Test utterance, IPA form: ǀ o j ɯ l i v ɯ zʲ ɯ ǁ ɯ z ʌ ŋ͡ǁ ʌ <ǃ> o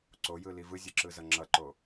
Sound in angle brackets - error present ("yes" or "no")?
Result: no